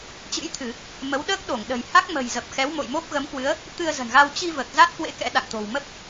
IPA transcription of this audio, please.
t͡ɕ ɨ̰˧˥ j t̪ʰ ɨ˧˩˨ | m ə˨˦ w ɗ əː˦˥ k̚ ɗ o˧˩ ŋ ɗ ə̤˨˩ j h a˦˥ k̚ m ə̤˨˩ j z ə˨˩ p̚ x ɛ˨˦ w m o̰˧˨ j m o˦˥ p̚ ɣ ə˨˦ m k w ɨ˨˦ ə̯ | t̪ ɨ˧ ə̯ z ə̤˨˩ n ɣ a˧ w t͡ɕ i˧ v əː˨˩ k̚ z a˦˥ t̚ k w ḛ˧˥ k ɛ̰˧˥ ɗ a̰˧˨ ŋ t̪ o̤˨˩ w m ə˦˥ p̚

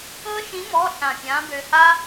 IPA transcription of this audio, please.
ɤ˥ ʃ ĩ˧˥ m ɔ˧˥˧ ɬ ã˧˩ pʲ ã˧˥ b ø˧ h a˥

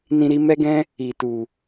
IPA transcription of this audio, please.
n ĩ˧ ɾ i˦ m ɛ˦ ɡ ɛ̃˦ | i˨ t u˨

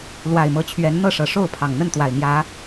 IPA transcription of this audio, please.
l w a˨˩ ɪ̯ m ɤ˨˦ t͡ɕʰ ɥ ɛ˨˦ n n̪ ɤ˥˨ ʂ ɤ˨˩ ʂ o˥˨ ʊ̯ pʰ ɑ˨˩ ŋ n̪ ə˥˨ n t̪ w a˨˩ ɪ̯ m j ä˨˦

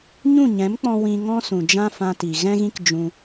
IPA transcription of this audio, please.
ɲ ũ˦˨ ɲ ɛ̃˨˦ m k͡p ɔ̃˧ w ĩ˧ ŋ ɔ̃˦ s ũ˨ d͡ʒ ã˦ f ã˧ t i˨ ɣ ɛ̃˦ ɣ ĩ˦ k d͡ʒ ũ˧

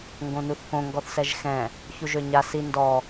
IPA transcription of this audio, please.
ŋ ɡ õ n u θ k õ ŋ ɡ ɔ θ s ɛ ʒ x ɛ̃ | ç u ʒ ø ɲ a s i n d ɔ

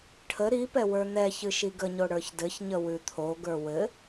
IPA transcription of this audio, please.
ʈʰ ə ɾ i p ɛ w ə˞ n̪ ɛ ç ɨ ʃ i ɡ ə ɲ o ɽ ə˞ ç d ɘ ç ɲ ə w ʉ t̪ʰ o ɡ ə˞ w ɘ

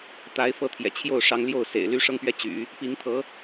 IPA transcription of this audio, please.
t̪ a˧˥ ɪ̯ f ɤ˧˥ t̪ʰ j ɛ̰˨˩ t͡ɕʰ j o˥˩ ʊ̯ ʂ ɑ˧˥ ŋ l j o˥˩ ʊ̯ s ḛ˨˩ ɪ̯ l y˧˥ ʂ ɤ˥˧ ŋ p ɥ ɛ˥˩ t͡ɕ y̰˨˩˦ | p i˧˥ ŋ t̪ʰ ɤ˧˥

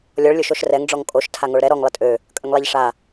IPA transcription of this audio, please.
lʲ ɔ ɭ lʲ o ʃ o ʃ r ɛ ŋ ɖ͡ʐ ɔ ŋ kʼ o ʃ tʰ a ŋ o ɭ ɾ ɛ ɾ ɔ ŋ lˠ ə tʼ ø | kʼ ə ŋ lˠ ɛ ʎ ʂ a

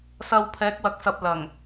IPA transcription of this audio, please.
s ɐ˧ w pʰ ɛː˨˥ k̚ w ɐ˨ k̚ s ɐ˨ p̚ l ɐ˨˩ ŋ

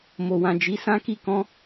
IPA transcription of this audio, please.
m o˨ w ã˨ d͡ʒ i˨˦ s ã˦ k i˦˨ k ɔ̃˧

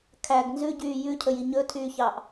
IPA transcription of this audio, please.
kʰ æ ɡ n z ʉ ɟ yː j ʉ cʰ ɵ j i ɲ ɵ tʰ yː ç ɑː ʔ

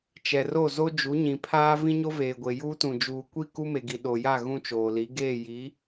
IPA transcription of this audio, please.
t͡ʃ ɛ˨ r o˦˨ z o˦ d͡ʒ u˨˦ ɲ ĩ˨ pʰ aː˦ v ĩ˦ ɲ o˦ v eː˨ ɡʷ e˨ j uː˦ t ũ˨ d͡ʒ uː˨ kʷ i˦˨ k u˦ m e˨ ɡ i˨ ɗ o˨ j a˦˨ ɣ ũ˦ t͡ʃ oː˨ l i˨˦ ɡ eː˦˨ j i˨˦

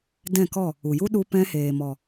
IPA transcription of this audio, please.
d ɛ̃˦˨ k ɔ˦˨ | u˨ j u˦ ɗ u˧ p ɛ̃˧ h eː˨ m ɔ˨

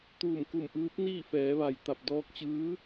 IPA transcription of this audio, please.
t̪ uː˧˩ m k u˧˩ m ʔ ɯː˧˥ p̚ n iː˥˨ f ɛː˩˧ ʋ a˩ j t̪ a˧˩ p̚ d ɔː˧ k̚ t͡ɕ ɯː˧˥

